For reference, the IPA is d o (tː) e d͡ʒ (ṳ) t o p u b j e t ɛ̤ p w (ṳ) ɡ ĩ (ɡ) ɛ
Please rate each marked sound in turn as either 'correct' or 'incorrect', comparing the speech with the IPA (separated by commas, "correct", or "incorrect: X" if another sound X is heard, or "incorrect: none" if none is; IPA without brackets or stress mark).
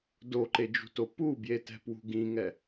incorrect: ǃ, correct, correct, incorrect: ŋ